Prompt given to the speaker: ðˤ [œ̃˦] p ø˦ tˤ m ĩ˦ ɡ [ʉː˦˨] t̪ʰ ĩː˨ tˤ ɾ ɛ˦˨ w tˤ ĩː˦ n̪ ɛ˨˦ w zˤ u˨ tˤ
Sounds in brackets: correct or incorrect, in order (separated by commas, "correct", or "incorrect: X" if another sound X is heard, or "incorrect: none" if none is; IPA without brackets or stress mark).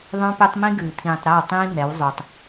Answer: correct, incorrect: ʉː˨